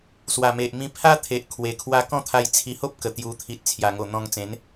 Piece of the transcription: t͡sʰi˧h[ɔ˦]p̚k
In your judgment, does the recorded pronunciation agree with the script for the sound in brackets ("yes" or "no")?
no